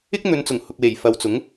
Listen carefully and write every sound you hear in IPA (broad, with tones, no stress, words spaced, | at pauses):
ɪ˥k̚n̪ɵ˨˧nt͡sʊ˨˩ŋ hʊ˨k̚we˨˩jfɐ˨wt͡sʊ˨˥ŋ